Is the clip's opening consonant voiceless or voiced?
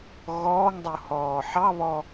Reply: voiced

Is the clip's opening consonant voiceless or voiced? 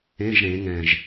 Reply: voiced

